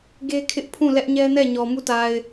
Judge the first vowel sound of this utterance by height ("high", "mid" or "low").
mid